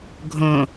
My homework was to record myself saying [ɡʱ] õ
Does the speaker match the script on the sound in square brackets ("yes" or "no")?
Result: yes